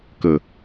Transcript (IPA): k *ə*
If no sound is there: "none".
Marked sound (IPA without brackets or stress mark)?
ə